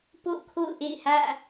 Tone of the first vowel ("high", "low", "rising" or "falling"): falling